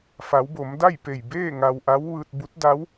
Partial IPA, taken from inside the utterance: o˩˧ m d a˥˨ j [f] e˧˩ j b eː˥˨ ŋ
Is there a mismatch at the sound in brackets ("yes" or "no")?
yes